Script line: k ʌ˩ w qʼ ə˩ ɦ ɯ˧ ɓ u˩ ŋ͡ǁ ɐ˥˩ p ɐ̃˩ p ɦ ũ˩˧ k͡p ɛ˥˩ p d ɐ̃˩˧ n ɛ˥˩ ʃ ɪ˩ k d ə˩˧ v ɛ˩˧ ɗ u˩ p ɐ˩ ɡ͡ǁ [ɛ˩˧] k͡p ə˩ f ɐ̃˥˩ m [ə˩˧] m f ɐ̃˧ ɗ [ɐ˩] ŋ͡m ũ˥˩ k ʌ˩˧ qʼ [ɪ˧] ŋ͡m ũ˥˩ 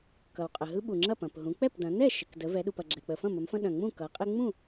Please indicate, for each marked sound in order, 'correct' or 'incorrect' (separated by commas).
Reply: incorrect, correct, incorrect, correct